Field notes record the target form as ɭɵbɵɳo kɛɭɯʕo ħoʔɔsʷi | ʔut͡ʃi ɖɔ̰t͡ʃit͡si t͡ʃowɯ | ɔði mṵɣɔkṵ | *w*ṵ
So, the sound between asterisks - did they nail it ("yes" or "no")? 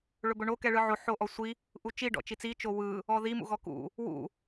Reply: yes